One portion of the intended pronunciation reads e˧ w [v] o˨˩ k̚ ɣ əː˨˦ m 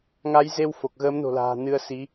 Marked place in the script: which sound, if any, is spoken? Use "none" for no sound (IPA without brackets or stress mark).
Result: f